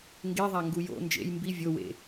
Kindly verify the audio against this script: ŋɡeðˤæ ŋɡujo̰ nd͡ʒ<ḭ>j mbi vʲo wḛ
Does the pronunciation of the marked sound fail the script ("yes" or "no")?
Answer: yes